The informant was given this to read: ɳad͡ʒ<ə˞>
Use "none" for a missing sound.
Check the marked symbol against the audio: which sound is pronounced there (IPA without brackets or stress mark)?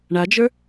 ə˞